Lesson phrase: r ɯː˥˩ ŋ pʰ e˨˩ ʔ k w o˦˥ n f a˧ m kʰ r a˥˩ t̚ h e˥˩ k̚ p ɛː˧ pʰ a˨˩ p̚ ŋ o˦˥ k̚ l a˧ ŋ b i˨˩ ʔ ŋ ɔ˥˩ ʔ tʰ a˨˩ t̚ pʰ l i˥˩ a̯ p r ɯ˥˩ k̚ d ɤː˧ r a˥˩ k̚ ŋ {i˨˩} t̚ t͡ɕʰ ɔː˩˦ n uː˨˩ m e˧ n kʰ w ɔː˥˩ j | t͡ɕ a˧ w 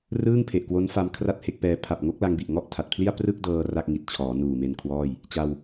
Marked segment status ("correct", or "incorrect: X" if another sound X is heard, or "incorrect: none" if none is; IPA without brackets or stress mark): correct